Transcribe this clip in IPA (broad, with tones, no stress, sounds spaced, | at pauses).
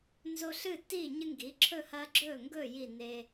n z o˦ ɬ ɨː˥˨ tː iː˥˨ ɲ ɨ˦ ŋ ɡ i˩˥ ǁʰ ɵ˥˨ h ɐː˦ ɡ͡ǁ ɵː˥˨ ŋ ɡ ɵː˥˨ j i˥˨ n eː˦